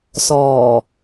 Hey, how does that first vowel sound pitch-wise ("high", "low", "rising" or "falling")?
low